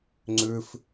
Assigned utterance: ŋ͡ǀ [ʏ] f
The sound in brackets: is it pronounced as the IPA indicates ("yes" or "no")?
yes